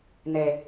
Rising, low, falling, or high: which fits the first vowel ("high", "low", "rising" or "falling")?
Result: low